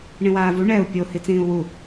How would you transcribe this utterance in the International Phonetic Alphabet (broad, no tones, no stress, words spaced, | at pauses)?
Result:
ɳĩwaːvu ɳɛu̯ pʲo hit͡sĩːu̯wu